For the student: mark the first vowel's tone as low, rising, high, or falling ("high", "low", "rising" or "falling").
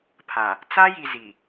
low